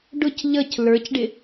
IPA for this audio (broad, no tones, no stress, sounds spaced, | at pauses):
ɖ ʊ c ʎ ʌ c l ə˞ c ɖ ɪ